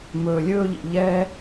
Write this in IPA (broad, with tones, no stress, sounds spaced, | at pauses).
m ɵː˨ lʲ ɵː˥ ʎ ḭ˩ ʎ ɛː˦